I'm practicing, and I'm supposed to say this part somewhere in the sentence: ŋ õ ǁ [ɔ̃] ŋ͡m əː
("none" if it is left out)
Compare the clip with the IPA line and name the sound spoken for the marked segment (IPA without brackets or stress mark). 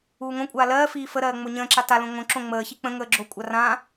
õ